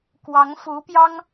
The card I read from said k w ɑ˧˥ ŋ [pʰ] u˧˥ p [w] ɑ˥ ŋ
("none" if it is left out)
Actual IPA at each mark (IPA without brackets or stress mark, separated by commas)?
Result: f, j